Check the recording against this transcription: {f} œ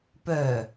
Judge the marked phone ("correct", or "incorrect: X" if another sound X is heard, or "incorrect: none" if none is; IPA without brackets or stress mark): incorrect: p